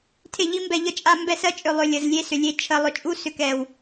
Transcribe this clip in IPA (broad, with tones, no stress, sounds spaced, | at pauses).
tʰ e˦˨ ʎ i˦ m b ɛ˧ ʎ ə˧ t͡ʃʼ a˧ m b ɛ˦˨ s ɜ˦ t͡ʃʼ ʏ˧ lˠ ʏ˧ lʲ ə˨ z lʲ e˦ s ʏ˨ lʲ e˧ t͡ʃʰ ə˧ lˠ ʏ˧ t͡ʃʼ u˦ s ʏ˧ k ɛ˨ w